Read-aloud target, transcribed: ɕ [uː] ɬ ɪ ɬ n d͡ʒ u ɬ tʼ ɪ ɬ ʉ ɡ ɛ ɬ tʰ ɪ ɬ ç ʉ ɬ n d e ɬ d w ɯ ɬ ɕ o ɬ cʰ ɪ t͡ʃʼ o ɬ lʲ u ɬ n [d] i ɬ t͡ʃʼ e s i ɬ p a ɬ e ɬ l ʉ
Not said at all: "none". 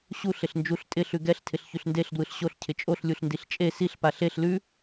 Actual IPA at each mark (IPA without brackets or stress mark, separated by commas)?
u, d